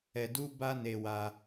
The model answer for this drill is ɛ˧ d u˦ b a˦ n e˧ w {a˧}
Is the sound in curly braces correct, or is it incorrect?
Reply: correct